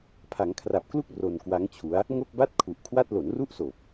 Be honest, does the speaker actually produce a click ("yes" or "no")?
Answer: no